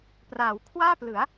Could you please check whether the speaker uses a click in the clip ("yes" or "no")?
no